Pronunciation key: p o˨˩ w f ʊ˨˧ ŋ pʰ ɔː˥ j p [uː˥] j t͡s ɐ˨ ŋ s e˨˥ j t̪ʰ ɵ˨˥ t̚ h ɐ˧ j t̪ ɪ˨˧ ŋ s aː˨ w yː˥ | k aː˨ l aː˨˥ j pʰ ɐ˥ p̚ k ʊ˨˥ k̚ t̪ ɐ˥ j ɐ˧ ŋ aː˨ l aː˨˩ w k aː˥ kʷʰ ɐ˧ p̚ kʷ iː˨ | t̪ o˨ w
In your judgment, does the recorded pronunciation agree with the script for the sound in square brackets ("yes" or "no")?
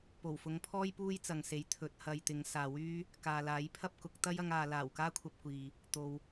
yes